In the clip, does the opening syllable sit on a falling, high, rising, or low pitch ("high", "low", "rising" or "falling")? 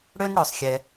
high